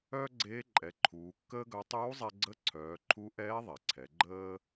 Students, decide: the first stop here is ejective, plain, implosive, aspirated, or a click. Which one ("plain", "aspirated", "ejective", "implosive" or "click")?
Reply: click